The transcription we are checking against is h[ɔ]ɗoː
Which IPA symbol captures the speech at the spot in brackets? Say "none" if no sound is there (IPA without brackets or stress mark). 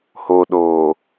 o